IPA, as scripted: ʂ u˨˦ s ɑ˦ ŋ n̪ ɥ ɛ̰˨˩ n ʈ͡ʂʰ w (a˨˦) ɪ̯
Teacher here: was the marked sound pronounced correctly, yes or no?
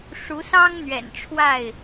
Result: no